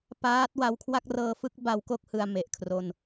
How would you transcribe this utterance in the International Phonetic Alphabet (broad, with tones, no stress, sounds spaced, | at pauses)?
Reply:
p aː˦˥ t̚ w a˧ w kʰ w a˥˩ k̚ r ɤː˦˥ f ɯ˦˥ k̚ b a˦˥ w k o˥˩ k̚ h ɯ˧ a̯ m e˨˩ ʔ kʰ r o˧ n